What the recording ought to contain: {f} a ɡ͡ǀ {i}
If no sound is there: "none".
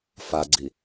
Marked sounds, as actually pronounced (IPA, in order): f, i

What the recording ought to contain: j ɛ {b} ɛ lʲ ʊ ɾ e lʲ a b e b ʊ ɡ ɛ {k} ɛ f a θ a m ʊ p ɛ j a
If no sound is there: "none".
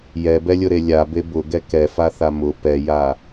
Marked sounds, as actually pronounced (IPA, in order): b, k

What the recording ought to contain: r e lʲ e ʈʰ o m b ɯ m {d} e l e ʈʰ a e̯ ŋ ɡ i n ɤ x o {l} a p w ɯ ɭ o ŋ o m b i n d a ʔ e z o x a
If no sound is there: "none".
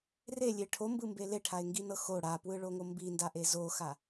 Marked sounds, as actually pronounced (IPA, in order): b, ɽ

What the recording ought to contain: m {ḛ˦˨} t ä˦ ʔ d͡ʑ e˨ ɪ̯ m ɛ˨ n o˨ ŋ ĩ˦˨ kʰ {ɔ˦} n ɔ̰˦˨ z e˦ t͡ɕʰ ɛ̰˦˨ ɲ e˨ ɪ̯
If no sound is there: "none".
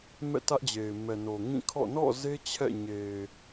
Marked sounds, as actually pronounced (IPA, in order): ɛ̰˦˨, ɔ̰˦˨

